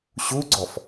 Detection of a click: present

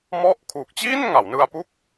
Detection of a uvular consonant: absent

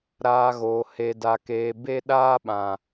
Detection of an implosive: present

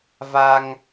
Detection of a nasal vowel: absent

